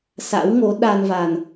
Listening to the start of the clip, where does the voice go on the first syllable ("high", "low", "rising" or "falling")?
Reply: rising